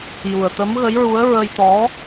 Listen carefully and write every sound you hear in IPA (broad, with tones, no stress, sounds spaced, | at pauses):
j u˨˩ ə̯ t̪ ə˧˥ m ɣ ə˧˥ j ɹ u˧˥ ə̯ ɹ ə˧ j t̪ ɔ˧˥